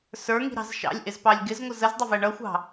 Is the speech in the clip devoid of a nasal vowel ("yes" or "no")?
yes